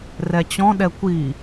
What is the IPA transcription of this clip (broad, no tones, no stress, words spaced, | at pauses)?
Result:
rɛt͡ɕɔ̃ɗɛ kʷi